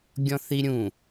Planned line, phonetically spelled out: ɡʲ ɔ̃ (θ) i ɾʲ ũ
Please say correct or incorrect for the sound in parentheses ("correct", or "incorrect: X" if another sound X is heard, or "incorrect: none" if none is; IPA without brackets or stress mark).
correct